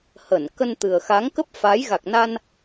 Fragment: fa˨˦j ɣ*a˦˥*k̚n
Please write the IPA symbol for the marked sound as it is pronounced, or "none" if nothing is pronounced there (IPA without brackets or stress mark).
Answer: a˨˩